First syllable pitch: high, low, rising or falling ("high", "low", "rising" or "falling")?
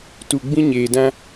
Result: low